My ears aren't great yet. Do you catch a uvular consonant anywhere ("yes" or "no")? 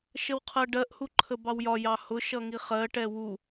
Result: yes